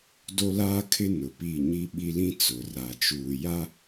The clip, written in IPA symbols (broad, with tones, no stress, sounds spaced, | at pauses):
d o˦ l aː˦ kʰ ɪ˦ n ʊ˨ p i˦˨ ɲ i˦ ɓ i˦ l ĩ˦ t͡s ʊ˨ r a˨ t͡ʃ uː˨ j a˦